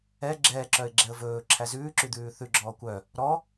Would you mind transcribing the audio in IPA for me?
ɛ ɡ͡ǁɛːǁœɪ̯ɡ͡ǁɛə̯ vɵːǁʰæ zʉːǁyd̪ʉː θʉɡ͡ǁɔː kʷœ | ɾɔ

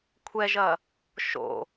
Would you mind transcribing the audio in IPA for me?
kʷʰɛʒɐ | ʃo̰

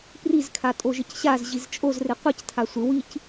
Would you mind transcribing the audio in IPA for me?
prizkʰatʼo ʒɪcɕaz ʑizt͡ʃʼozre qʷictʰa sʷɪ wic

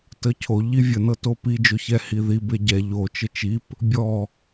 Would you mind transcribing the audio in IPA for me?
təcʰo ʎivʲə nɤtopi d͡ʒoçɛ hiði beɟɛ ʎo t͡ʃət͡ʃip | bʲɔ

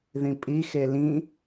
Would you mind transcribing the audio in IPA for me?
ðĩpʼi xelĩ

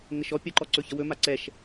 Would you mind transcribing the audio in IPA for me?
ŋəʃɔ pʲəǃɔ ǀɵçəwɵma ǀɛʃ

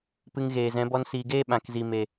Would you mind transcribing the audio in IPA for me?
pɨ˧ŋ ɣeː˨zɛ̃˨˦ bɔ˧nsiː˨ɡeː˦ ɓã˨kzi˨ me˨

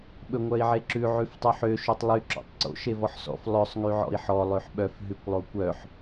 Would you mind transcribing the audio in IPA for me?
ɓɵŋʷœi̯ʕeǁʉ ʕʉftˤʉħø ʃøtˤlˠy ǁɔ̰tˤǀo̰ ʃevɔħsɔ̰f lˠœsˤ ŋyʕɔ̰i̯ħɔ lˠøħɓœf ɦʉkʷlˠokʷœħ

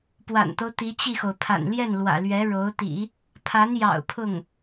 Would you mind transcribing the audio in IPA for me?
pwa̰˨˩nt̪o˦ʊ̯ t̪i˧˥t͡ɕi˥˩xo˩ʊ̯ pʰa̰˨˩nljɛ˥˩nlwä̰˨˩lɥɛ˧˥ ɻo˧˥ʊ̯t̪ḭ˨˩˦ | pʰa˧˥njɑ̰˨˩ʊ̯ pʰʊ˥˩ŋ

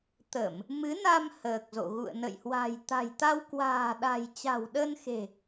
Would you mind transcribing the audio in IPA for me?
t̪ə˧˩˨m | mɨ˨˦na˧m həː˨˩k̚zo̰˧˨ ɣṵ˧˨ə̯nə̰˧˨jhwa̤˨˩j t̪a̤˨˩jt̪a˧wkwa̤ː˨˩ ɗa̤˨˩j t͡ɕa̤˨˩wɗə˧nxe̤˨˩

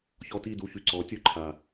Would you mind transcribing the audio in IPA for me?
çɔ˧ti˦˨du˧ çy˨ ǀɔ˨˦ tʲo˦ ǃʰa˨

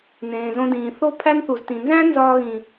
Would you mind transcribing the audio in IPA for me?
nẽː˨zõ˧dĩː˨ θo˧ pʰæ˦nθu˨ztĩ˨ nzæ̃˦ nzɒː˧ɣĩ˨

